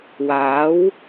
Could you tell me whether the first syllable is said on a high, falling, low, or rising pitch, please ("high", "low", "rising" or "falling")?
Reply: rising